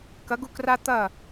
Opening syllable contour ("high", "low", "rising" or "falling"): rising